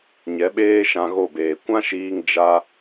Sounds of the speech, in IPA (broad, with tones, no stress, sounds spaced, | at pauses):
ɲ ɛ˨˦ ɓ eː˦ ʃ ã˧ ɣ o˦˨ b eː˨ kʷ ã˦ ʃ iː˧ ŋ d͡ʒ a˦